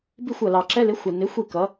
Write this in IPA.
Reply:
b i˥˨ xʷ ʌ˨ l ɑ˨ ǁ ɛ˧˥˧ l ɪ˨˥ xʷ ə˨ n ɪ˨˥ xʷ i˥˨ k ʌ˨˥

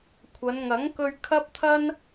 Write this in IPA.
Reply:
kʷʰ ɐ˨˧ n ŋ ɐ˨˥ ŋ k ɵ˧ ɥ kʰ ɐ˥ p̚ t̪ʰ ɐ˥ n

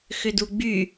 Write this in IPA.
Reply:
x ʏ d u ɡ͡b y

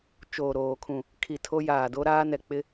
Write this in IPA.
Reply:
t͡ʃ oː˨ ɾ oː˨ kʰ ũ˨ | kʰ i˨ tʰ o˦ j aː˨ d o˦ ɾ aː˦ n ɛ˨ k͡p ɪ˦

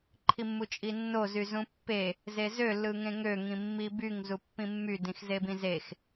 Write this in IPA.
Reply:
ǃʰ i mː u t͡ʃʼ i nː o z y z ũ pː e | z e z ø lː ɯ ŋ ẽ ŋ ø ŋ ĩ mː i b y ŋ z u pː ĩ mː y d ĩ x z e b ĩ z e x

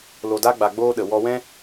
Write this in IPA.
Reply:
l o˧ d a˦ ɡ͡b a˧ ɡ͡b oː˦ ɗ ə˨ w ɔ˧ w ɛ̃˦

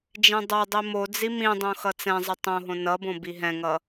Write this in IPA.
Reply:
d͡ʒ ẽ dˤ ʌ dˤ i m o d͡z i m ĩ dˤ õ x ʌ t͡s ɛ̃ zˤ ʌ tˤ õ ɦ õ n ʌ b õ b i ɦ ɛ̃ ŋ ʌ

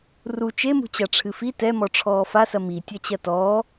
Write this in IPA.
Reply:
r u t͡ʃ e m ṳ t͡ɕ a ʈ͡ʂʰ ɨ f i t ɛ m ɔ ʈ͡ʂʰ ɔː f a s ɐ m i tʲ ɐ t͡ɕ ɐ t ɔː

